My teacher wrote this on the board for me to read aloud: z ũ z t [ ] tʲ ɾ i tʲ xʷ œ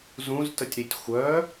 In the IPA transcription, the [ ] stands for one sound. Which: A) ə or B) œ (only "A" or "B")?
A